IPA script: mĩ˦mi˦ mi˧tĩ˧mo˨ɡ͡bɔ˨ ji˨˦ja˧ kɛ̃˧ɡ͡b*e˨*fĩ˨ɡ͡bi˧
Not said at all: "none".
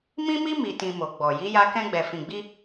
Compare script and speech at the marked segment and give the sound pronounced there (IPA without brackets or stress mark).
ɛ˨